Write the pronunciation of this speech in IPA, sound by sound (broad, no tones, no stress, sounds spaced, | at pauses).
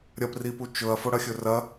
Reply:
ɾʲ ɐ p r i p u t͡ʃ ɵ ɐ̯ f o ɽ ɐ xʲ ɵ r ɐ